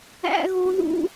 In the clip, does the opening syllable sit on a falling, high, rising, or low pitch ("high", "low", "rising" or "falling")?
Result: high